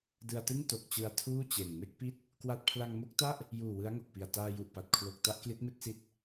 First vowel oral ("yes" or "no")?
yes